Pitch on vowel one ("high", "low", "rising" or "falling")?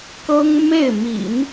high